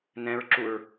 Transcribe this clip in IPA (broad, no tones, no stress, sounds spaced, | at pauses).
n ɛ̃ ɹ ǁ u ɹ